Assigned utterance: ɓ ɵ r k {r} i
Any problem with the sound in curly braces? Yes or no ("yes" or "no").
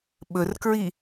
yes